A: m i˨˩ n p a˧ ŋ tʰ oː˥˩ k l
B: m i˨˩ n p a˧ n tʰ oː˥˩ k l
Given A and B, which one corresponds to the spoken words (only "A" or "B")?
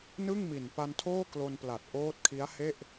B